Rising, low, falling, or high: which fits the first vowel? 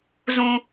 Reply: high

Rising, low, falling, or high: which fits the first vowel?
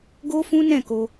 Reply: high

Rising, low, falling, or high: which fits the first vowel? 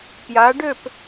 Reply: rising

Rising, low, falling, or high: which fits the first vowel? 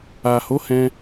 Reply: low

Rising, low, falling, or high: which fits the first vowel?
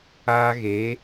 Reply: high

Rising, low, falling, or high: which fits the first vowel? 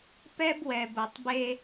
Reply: high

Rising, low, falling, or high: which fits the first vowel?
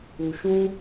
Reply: low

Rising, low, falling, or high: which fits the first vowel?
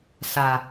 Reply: low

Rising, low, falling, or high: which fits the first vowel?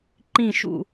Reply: falling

